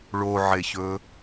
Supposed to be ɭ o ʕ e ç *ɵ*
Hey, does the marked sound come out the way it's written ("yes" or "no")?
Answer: yes